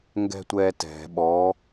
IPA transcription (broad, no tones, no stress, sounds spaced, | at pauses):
ŋ ɡ ɛ̤ tʷ ɛː t ɛ̤ ɓ ɔ